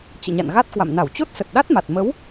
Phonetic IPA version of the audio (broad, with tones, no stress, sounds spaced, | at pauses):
t͡ɕ ɨ̰˧˨ ɲ a̰˧˨ n ɣ a˦˥ t̚ k w a̰˧˨ m n a˧˩ w t͡ɕ o˦˥ t̚ s ə˨˩ t̚ ɗ a˦˥ t̚ m a˨˩ t̚ m ə˨˦ w